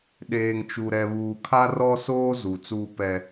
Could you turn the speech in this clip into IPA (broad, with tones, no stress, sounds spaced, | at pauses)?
ɗ eː˨ ŋ t͡ʃ u˨ ɾ ɛ˨ β uː˨ kʰ a˦ r ɔ˦ s oː˦ z u˨ t͡s uː˦ p ɛ˦